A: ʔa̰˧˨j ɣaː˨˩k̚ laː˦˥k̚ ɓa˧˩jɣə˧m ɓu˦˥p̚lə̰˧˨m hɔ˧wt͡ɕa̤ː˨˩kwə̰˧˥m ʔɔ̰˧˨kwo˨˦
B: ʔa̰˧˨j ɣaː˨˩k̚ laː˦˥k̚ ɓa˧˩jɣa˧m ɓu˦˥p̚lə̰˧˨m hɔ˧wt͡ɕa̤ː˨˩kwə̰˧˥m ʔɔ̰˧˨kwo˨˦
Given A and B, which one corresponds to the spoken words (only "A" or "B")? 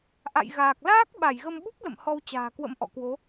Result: A